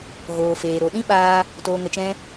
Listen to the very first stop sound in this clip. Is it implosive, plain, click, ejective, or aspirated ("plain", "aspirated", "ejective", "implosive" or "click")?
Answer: implosive